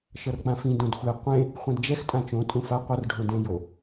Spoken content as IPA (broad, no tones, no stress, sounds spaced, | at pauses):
ʃ ʌ r k͡p ã f ĩ d õ d xʷ ɛ qʷ ẽ | χʷ ɛ̃ d d͡ʒ ɛ x tʼ ã t͡ʃ õ tʼ ũ f a qʷ ʌ r ɖʱ õ d ẽ j o